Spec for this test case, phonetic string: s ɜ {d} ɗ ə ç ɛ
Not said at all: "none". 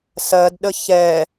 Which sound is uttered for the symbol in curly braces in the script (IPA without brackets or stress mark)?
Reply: d